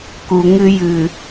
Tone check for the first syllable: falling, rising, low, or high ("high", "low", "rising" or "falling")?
low